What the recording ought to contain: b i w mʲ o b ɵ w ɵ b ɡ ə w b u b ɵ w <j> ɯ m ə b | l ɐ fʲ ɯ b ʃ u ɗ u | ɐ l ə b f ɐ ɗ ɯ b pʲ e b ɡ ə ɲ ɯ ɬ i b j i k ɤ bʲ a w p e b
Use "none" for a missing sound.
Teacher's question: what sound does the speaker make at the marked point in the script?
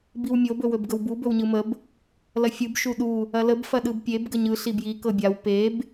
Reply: ɲ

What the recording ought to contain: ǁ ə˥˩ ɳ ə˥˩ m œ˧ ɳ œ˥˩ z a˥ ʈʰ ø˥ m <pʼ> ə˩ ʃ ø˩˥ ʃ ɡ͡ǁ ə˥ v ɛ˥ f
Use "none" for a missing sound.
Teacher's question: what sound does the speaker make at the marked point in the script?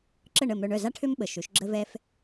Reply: ɓ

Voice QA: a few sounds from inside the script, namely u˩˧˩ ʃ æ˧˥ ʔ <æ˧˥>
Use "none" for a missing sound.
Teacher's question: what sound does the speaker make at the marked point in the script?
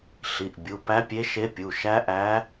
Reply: æ˧˥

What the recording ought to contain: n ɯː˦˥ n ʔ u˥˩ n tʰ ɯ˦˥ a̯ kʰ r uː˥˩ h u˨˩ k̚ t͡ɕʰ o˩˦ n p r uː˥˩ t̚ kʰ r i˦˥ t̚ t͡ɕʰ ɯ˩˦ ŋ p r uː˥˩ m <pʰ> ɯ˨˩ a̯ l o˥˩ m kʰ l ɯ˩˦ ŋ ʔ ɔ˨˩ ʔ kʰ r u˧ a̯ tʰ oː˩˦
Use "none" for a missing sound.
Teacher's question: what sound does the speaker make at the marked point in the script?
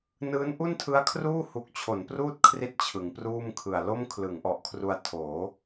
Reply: kʰ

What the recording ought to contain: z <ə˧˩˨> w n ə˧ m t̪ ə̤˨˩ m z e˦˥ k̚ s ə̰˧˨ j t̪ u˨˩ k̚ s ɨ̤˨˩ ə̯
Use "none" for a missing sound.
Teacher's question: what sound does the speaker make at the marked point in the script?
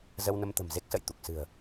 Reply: ə˧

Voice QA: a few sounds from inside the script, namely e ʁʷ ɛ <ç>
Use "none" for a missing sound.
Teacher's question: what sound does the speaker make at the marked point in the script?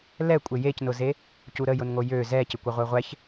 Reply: ç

